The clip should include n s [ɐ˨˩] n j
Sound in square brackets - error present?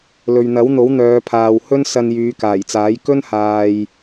yes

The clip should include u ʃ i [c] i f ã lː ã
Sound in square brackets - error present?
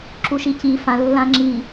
no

